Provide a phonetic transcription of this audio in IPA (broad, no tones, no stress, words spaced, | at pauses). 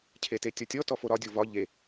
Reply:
cʰetetʲɔtʲɔ tɔfoɾɒ dʲovɒ ʎe